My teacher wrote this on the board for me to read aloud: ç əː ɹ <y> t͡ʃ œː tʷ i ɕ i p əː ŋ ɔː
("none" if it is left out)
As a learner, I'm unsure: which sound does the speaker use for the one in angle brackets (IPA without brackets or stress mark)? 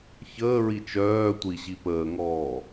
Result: i